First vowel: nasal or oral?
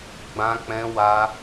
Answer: nasal